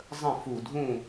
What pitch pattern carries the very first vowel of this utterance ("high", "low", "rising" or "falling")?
falling